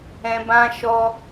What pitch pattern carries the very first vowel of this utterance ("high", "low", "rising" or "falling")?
high